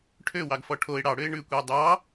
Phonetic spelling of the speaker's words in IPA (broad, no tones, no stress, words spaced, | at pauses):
ʈʰø wɑɡfɔʈʰoɪ̯ ɽɑɽøɪ̯ ɳʉkʷeʊ̯ dˤɑ